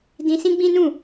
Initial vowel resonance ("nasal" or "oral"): nasal